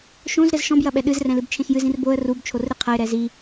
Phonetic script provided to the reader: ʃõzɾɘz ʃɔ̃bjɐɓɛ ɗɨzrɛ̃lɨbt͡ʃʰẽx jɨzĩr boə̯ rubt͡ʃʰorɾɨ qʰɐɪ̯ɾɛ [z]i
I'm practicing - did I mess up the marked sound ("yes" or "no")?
no